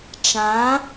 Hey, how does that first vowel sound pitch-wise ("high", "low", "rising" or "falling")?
rising